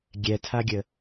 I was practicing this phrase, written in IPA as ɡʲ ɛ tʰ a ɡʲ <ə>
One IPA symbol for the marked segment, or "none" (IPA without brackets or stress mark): ə